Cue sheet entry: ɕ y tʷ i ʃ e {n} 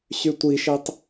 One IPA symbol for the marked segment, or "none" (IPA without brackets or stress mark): tˤ